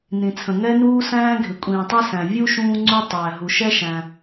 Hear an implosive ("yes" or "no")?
no